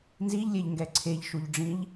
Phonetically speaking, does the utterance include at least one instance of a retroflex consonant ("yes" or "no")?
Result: yes